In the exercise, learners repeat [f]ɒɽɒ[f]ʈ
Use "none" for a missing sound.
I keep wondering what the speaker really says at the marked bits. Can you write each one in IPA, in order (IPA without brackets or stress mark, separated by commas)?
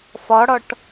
f, none